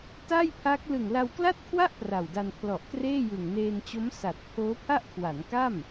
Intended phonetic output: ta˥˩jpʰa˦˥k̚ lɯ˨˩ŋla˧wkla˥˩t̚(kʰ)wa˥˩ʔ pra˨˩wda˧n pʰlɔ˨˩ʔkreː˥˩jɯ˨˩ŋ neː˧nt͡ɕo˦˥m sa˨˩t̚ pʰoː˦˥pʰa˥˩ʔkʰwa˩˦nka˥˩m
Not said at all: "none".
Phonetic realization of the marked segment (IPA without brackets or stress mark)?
kʰ